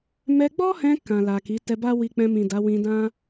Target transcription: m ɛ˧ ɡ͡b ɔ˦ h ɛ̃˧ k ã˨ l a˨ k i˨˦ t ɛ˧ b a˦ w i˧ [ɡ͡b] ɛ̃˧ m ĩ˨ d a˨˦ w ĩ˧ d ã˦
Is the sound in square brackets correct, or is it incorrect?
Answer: incorrect